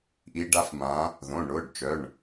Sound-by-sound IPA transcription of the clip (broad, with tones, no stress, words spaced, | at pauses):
ʔi˨˦ ɖa˨˦fmã˨˦ | ðõ˩˧˩ɳʊː˩˧˩ɖt͡ʃœ˩˧˩ɳ